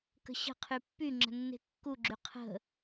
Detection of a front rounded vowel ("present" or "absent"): present